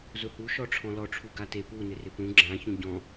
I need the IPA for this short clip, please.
z ʊ h u ʃ ɔ ʈ͡ʂʰ ɔ̃ l ɔ ʈ͡ʂʰ u ɡ a t e p u n ɪ r ɪ p ũ ɡ͡ǁ ã ç ũ ɟ ɔ̃

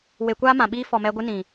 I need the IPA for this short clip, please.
w e˧ kʷ aː˦ m ã˨ ɓ iː˦ f ɔ˨ m ɛ˧ ɡʷ ɨ˦ n ĩ˨

